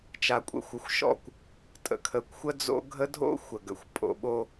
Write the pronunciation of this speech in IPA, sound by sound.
t͡ʃ a˨ kʷʼ ə̰˨ xʷ ə˨ xʷ ʃ ɔ̰˦˨ kʷ | tʼ ə̰˨ kʰ ə˨ kʷ xʷ ə˦ d͡z o̰˦ ɡʱ ə˦ dʱ o̰˦ xʷ ə˨ ɡ ə̰˨ xʷ pʼ o̰˨ ɓ o˦

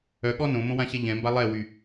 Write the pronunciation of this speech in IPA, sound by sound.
œ ɠ ɔ n õ m õ w ã ɕ ɛ ʎ ɛ̃ m b a lˠ ɛ w y

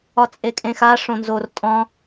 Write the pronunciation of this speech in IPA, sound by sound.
ɒ t͡sʼ e kʼ ẽ x a ʂ õ n z o r tʼ ɔ̃

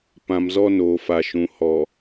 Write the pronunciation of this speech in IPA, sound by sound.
p ã˨ m z ɔ˦ n oː˨ f a˨ ʃ ũ˨ h ɔ˨

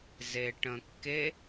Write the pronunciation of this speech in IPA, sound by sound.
z e ʈ ə̃ kː e

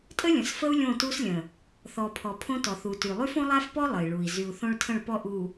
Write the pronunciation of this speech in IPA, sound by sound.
tʼ ə˦ lʲ ə̃˨ s f ə˦ u̯ lʲ õ˦˨ t u˦ s lʲ ə̃˨ | θ ɔ˨ pʰ ɔ˨ pʰ õ˦ t ɔ˨ θ u˨ t y˨ lˠ y˦ f õ˦ lˠ a˦ f p ɔ˦ lˠ ə˨ i̯ ɭ u˨ i̯ z y˨ u̯ θ õ˦ ɭ tʰ ə̃˦˨ ɭ p ɔ˦ ʔ u˨

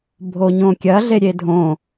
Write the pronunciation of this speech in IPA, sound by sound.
bʱ o ɲ õ kʲ ɐ ɮ e ɾʲ e dʱ õ

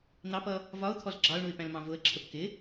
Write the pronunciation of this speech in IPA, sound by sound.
n̪ ɑ p ʌ | v ɒ ʊ̯ t̪ʰ ɔ z ɡ͡ǁ ɑ ʊ̯ ɳ u ɪ̯ p æ̃ l m ɑ̃ v ʊ ə̯ ǁʰ ə p k ɪ

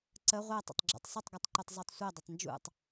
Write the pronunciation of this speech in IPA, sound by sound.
ǀ ə ʁʷ ɜ tˤ ə̰ tˤ ɡ͡ǁ ṵ tˤ sˤ ʊ tˤ ɡ u tˤ ǃ u tˤ zˤ u tˤ sʷ ɜ dˤ ɪ tˤ n d͡ʒ ṵ tˤ

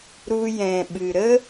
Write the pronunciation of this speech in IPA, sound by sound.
ɾ u˧ j ɛ̃˨ ɓ ɨ˨ ɾ ə˦

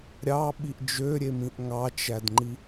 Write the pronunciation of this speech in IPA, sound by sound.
ɾʲ ɑ ɓ i ʔ d͡ʒ ø ɾʲ e m ĩ ʔ ŋ ɑ t͡ʃ æ d ŋ͡ǃ i

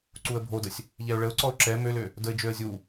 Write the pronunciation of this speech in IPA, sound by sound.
ǀ u ə̯ bʱ o d ə sʲ | ʎ ɛ ʊ̯ ɭ ə ʊ̯ ǀ ɔ ʊ̯ ǁ ɛ m ø l ø | d ə ɪ̯ d͡ʒ ø ə̯ zʲ u

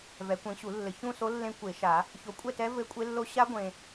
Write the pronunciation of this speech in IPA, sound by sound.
v ɛ˨˦ kʷ ẽ˨˦ ɕ u˨˩˦ lː ɘ˨ ç ũ˥˨ s o˦˥ lː ẽ˦˥ kʷ e˨˩˦ ʃ a˨˩˦ | ç o˨˦ kʷʼ ɛ˥˨ t ɛ˦˥ v ɘ˦˥ kʷʼ e˦˥ lː o˦˥ ɕ a˦˥ ɡʷ ẽ˨

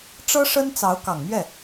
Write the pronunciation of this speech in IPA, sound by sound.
ʈ͡ʂ ɤ˥ ʂ ə˥ n t͡s ɑ˧˥ ʊ̯ k ɑ˨˩ ŋ m ɥ ɛ˥˩

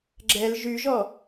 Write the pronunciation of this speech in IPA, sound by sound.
ɡ͡ǁ ɛ l ʒ y ʒ ɔ

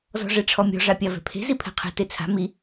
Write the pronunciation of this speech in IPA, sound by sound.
z ɔ̤ ʐ ɛ ʈ͡ʂʰ ɔ mʲ ɔ̤ ʐ a pʲ a v ɛ̤ pʰ e̤ z i pʰ ɛ̤ qʰ ɛ̤ t e t͡sʰ a̤ m i

